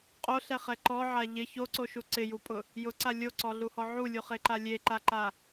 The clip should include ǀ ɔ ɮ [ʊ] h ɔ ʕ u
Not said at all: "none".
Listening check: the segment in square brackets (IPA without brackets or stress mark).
u